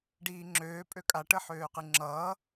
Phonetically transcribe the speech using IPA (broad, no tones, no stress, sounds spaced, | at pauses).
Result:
ɖ iː ŋ͡ǁ øː pʼ ø kʼ a ʈ ə ħ øː q ɨ ŋ͡ǁ ʌː